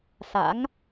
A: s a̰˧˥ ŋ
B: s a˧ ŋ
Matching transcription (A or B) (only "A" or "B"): A